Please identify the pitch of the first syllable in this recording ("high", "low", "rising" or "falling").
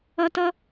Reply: high